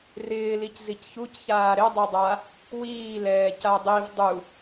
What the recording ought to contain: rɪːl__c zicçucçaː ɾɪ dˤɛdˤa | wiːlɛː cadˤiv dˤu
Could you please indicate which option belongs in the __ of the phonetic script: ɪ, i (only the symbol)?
i